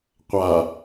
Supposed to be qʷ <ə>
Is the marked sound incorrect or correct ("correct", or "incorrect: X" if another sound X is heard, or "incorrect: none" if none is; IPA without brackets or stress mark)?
incorrect: a